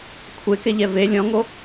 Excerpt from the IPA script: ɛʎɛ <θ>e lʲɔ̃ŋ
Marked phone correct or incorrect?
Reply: incorrect: v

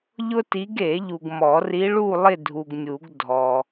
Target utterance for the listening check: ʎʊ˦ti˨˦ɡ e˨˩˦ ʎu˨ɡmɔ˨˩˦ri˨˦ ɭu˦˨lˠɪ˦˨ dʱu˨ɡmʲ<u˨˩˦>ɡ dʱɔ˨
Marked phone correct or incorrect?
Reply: correct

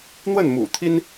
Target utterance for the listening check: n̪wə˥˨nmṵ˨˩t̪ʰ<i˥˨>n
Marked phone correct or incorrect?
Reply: incorrect: i˦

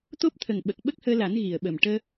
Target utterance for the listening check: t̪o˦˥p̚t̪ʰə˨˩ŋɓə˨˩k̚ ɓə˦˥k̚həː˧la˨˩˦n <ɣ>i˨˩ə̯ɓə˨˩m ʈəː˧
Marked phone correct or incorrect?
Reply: correct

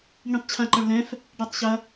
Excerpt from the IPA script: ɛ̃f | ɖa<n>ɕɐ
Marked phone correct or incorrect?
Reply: incorrect: tˤ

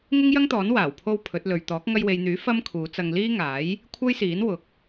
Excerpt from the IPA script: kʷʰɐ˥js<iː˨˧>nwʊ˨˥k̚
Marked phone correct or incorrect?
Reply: incorrect: iː˨˥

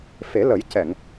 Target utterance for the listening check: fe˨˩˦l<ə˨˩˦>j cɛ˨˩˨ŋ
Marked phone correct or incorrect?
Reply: correct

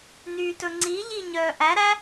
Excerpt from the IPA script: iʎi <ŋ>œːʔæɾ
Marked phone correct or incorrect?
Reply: incorrect: ɲ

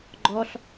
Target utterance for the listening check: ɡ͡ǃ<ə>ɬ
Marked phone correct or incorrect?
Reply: incorrect: ɔ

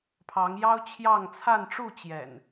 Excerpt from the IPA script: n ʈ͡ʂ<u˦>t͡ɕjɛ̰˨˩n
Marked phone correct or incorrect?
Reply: incorrect: u˥˨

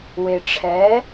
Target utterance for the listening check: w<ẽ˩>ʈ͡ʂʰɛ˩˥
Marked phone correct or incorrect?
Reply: incorrect: e˩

